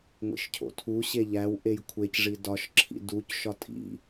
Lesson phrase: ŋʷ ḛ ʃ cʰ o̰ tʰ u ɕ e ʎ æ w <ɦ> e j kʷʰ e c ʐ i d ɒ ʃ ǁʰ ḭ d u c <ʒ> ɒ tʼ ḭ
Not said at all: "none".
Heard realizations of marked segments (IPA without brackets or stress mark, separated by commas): ʔ, ʃ